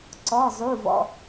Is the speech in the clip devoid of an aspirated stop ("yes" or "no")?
yes